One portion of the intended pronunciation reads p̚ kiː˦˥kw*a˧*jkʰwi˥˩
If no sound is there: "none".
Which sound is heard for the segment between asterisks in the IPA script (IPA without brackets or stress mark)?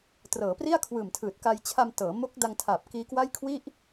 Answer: a˥˩